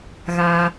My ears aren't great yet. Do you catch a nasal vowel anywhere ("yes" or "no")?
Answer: no